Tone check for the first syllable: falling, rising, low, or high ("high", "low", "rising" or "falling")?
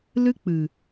high